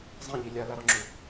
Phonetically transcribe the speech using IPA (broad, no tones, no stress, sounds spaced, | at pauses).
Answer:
zˤ ĩ ʎ i lʲ a l a ɾ ɔ ŋ͡ǁ u